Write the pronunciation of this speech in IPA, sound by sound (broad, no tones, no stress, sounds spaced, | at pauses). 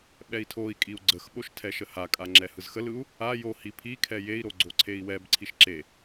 ɓ ɛ i̯ tʰ o i̯ kʼ i u̯ ɡ͡ǀ ə x ɓ o ʃ tʰ ɛ ʃ ə h a kʼ a ŋ͡ǁ ɛ h ɯ z x ə l ɯ u̯ | a j o h i pʰ i kʰ ɛ j e i̯ ɾ o ɡ͡ǀ o ǀʰ e i̯ w ɛ b ǀʰ i ʃ ǁ e